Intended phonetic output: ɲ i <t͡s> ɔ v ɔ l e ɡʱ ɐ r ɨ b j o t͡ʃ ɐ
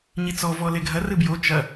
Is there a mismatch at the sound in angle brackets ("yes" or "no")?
no